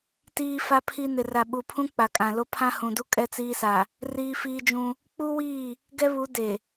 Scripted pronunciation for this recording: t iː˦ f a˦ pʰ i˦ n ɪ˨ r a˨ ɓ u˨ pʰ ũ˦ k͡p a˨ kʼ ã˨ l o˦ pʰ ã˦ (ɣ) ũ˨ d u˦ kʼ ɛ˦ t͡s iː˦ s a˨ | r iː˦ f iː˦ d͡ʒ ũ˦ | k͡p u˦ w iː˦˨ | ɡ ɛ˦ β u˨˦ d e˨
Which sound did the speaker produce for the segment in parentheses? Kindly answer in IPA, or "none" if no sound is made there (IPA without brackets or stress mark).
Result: h